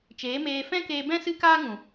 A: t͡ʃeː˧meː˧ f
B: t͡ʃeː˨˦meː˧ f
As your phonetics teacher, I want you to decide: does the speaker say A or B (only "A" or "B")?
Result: B